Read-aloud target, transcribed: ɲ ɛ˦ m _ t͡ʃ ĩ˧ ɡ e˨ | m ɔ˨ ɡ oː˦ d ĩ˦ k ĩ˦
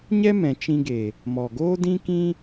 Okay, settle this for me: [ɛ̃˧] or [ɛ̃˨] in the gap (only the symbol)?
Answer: ɛ̃˨